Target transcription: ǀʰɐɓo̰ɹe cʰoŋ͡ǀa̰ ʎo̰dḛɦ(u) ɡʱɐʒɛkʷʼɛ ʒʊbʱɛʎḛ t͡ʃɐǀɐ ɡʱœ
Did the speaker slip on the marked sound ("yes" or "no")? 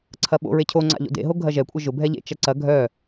yes